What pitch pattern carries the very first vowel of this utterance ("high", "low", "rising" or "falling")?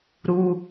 high